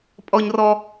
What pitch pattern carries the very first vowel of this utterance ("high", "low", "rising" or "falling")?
high